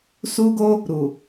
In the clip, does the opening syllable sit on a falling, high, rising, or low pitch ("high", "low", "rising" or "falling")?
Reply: high